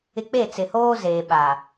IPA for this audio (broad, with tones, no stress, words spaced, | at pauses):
ɪ˦ k͡pe˦˨t͡sɪ˨hoː˦ zeː˨ɓa˨